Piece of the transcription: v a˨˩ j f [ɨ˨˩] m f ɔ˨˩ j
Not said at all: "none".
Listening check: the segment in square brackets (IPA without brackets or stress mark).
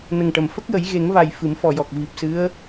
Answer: ɨ˨˩˦